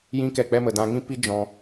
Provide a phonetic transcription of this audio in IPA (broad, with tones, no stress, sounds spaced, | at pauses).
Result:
j ĩ˦ k ɛ˦˨ k͡p ɛ˦ m ə˨ d ã˧ ŋ ĩ˦ p i˦ d͡ʒ ɔ̃˧